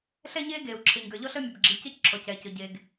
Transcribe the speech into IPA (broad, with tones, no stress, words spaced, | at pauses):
ɬɛ˥ɲeː˥ ɡeː˩u̯ǁʰe˩ɲɡə˞˩ ʎɔ˥ɬəː˥mʲɤ˩bɡ͡ǁiː˩ cəː˥cǁʰɔ˩cɛː˩cɤ˩ ɟe˩ɡ